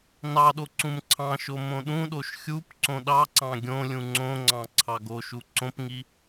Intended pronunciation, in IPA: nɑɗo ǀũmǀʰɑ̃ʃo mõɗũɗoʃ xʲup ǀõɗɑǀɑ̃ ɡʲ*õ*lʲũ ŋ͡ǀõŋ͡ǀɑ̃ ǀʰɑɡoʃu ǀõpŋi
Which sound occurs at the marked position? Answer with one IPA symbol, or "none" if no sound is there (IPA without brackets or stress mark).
õ